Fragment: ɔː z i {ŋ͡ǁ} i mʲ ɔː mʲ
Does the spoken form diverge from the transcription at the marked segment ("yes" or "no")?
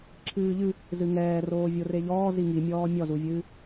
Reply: yes